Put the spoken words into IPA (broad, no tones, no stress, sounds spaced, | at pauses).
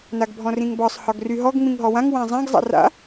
n a ɡ bʱ ɔ̃ r ĩ ŋ b ɒ sˤ h ɒ ɡ r y ɦ ɔ ɡ ŋ͡m ĩ ŋ ɦ ɔ w ã ŋ w ã zˤ ã ɡ zˤ a̰ r a̰